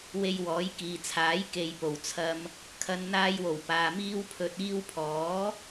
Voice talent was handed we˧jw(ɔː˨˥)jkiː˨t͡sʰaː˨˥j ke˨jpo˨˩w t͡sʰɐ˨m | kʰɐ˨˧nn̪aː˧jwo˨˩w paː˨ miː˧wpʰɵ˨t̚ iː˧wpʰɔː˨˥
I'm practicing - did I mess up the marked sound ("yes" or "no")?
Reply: no